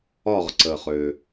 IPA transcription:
ɒ˥˧ ʁ ǀ ə˨˩ χ ø˨˩

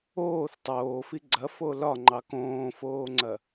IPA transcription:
oː θ tˤ oː f i ɡ͡ǀ ɐ f o l ɒ ŋ͡ǃ ɑ k õː f oː ŋ͡ǀ ɐ

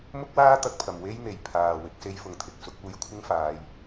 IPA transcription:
m ʊ˥ k̚ w aː˥ t̪ ɐ˧ k̚ pʰ ɐ˨˩ m w e˥ j n̪ e˨˩ j pʰ aː˨˩ w ɪ˨˥ k̚ s e˧ j f ʊ˨ ŋ t̪ʰ ɪ˨ k̚ s ʊ˨˥ k̚ uː˧ j kʷʰ ɪ˥ ŋ f aː˨˧ j

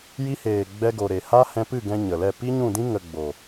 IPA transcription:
j i˧ h eː˨ ɡ͡b ɛ˧ ɡ o˨ ɾ e˨ h a˦ h ɛ̃˧ p ɨ˦˨ ɡ ɛ̃˧ ɲ ə˨ l ɛ˦˨ p i˦ ɲ ũ˦˨ d ĩ˦ ŋ ə˨ ɡ͡b o˨

